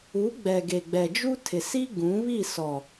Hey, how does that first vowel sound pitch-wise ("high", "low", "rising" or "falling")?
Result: rising